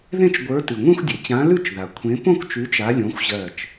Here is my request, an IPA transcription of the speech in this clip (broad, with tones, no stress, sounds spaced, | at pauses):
ð ẽ˥˧ t͡ʃ ɡʷ ə˞˨˥ t ʉ˩ ŋʷ ẽ˥˧ xʷ dʲ e˩ t͡ɕ ã˨˥ l ʉ˥˧ t͡ʃ ð a˩ kʷʰ ẽ˨˥ p õ˥˧ k t͡ʃ ʉ˨˥ t͡ʃ a˨˥ lʲ õ˨˥ xʷ ʑ ɜ˧˩ t͡ʃ